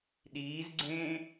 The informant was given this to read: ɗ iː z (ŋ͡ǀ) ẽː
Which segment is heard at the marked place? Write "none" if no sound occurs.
ɡ͡ǀ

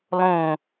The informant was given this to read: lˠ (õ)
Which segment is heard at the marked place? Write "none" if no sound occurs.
õ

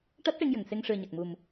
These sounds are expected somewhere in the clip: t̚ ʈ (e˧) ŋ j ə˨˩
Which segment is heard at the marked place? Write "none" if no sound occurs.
e˧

